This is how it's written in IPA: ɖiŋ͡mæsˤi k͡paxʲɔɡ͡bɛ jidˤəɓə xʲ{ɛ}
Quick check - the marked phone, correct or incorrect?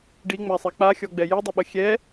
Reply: correct